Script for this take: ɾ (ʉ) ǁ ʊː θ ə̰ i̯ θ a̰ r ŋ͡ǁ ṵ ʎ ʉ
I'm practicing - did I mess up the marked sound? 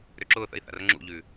yes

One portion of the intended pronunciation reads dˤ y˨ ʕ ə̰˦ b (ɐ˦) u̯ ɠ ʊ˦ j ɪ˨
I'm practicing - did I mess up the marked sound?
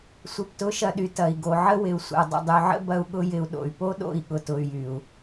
no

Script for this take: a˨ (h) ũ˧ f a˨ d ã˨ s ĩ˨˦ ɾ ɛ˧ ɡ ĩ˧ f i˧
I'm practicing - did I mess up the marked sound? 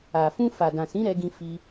yes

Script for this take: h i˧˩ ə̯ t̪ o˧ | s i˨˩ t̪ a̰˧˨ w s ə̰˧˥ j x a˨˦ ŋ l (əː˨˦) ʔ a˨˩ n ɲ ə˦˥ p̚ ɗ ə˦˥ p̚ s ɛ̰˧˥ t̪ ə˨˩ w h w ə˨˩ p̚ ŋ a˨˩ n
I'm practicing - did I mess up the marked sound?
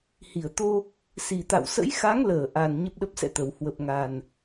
yes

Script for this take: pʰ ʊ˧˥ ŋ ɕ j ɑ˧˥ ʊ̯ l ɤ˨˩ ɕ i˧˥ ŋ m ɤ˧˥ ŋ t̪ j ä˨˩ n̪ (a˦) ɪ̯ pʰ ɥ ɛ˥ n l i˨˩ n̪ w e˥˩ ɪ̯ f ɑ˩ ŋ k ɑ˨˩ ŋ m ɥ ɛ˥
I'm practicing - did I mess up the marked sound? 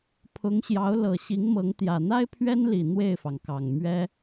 yes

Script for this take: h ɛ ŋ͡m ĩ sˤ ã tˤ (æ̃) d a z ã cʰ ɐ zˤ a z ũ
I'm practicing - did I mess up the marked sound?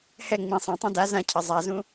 yes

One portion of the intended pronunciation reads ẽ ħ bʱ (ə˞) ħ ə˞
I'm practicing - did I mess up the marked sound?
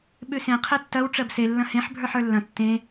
no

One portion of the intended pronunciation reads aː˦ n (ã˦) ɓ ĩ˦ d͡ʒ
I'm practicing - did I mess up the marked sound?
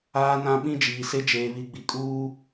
no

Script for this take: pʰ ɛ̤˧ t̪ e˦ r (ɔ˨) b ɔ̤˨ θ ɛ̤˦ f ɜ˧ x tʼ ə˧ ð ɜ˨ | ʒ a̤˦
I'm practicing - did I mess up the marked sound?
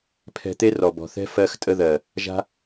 no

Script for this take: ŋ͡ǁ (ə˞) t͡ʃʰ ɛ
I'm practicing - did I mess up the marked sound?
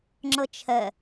yes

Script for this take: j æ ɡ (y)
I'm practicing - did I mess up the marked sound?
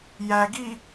yes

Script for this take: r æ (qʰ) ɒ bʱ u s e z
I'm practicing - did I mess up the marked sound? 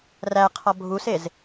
no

